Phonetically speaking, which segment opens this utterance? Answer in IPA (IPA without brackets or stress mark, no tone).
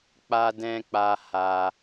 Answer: k͡p